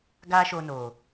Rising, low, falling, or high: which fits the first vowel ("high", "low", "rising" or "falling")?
high